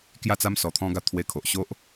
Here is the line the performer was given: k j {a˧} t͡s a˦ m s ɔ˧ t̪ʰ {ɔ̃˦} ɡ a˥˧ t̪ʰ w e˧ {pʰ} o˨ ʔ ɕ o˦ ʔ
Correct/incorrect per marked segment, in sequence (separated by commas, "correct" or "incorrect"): incorrect, correct, incorrect